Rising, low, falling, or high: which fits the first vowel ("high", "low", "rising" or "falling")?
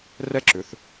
high